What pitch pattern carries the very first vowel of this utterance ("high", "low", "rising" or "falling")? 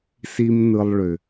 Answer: high